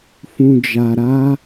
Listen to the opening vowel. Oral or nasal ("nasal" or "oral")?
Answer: nasal